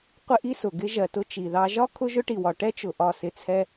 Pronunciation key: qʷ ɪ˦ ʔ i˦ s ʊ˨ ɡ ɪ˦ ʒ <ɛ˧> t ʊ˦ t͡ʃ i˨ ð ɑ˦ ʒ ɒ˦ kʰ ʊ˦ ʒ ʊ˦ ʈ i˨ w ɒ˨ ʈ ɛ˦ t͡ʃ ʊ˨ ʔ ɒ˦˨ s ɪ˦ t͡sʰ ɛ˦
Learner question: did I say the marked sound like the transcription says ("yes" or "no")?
no